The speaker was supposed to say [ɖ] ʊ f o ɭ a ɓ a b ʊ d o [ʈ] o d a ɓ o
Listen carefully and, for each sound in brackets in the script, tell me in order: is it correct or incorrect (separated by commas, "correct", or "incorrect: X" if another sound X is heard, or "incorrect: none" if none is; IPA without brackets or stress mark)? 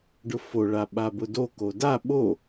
correct, incorrect: k